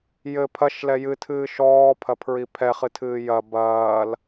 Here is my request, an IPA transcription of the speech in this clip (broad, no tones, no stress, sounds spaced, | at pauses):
j ɘ pʰ ɐ ʃ l ɛ j ɨ tʰ ɨː ʃ ɔː pʰ ɐ pʰ ɹ i pʰ ɛ χ ɨ tʰ ɨː j ɐ b ɐː l